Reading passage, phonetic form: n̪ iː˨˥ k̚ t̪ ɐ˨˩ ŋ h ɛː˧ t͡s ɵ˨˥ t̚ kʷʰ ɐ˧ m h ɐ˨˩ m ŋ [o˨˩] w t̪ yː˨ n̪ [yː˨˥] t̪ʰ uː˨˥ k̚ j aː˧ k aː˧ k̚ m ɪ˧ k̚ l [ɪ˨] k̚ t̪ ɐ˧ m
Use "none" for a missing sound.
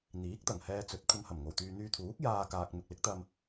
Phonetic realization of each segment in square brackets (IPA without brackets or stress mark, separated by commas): o˨˩, yː˧, ɪ˨˥